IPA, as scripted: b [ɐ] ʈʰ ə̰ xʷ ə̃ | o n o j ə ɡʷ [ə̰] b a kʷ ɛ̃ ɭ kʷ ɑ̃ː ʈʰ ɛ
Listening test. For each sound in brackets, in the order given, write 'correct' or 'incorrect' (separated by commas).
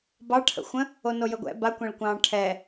incorrect, incorrect